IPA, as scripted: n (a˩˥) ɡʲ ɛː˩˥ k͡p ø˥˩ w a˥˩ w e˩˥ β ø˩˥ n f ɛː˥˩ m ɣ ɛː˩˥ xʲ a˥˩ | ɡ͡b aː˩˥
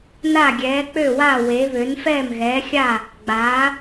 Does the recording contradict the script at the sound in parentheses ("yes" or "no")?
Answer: yes